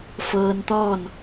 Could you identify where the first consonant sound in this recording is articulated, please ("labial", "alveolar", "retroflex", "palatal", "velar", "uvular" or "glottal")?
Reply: labial